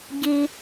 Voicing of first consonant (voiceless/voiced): voiced